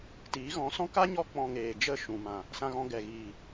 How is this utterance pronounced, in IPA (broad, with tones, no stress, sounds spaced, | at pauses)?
t iː˨˦ ɣ ɔ̃˨˦ s ɔ̃˦ k a˦ ɲ ɔ˧ k͡p ɔ̃˨ ŋ eː˨ d͡ʒ ə˦˨ ʃ ũ˨ m ã˨ | s ã˧ ɣ ɔ̃˧ ɡ ɛ˨ ɣ iː˨